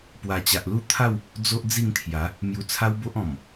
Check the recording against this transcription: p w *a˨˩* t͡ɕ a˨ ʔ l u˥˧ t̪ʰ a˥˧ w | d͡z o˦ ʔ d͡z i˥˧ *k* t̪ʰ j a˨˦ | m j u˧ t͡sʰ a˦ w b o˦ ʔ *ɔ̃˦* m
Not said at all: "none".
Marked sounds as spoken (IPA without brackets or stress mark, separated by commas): a˨˩, ŋ, ɔ̃˨˩